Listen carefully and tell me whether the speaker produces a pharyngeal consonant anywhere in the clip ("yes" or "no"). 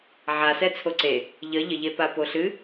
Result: yes